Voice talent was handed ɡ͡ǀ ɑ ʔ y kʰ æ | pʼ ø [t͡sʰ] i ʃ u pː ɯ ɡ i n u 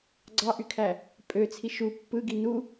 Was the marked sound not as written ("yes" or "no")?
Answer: no